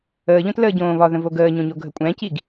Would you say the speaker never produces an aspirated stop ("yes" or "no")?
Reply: yes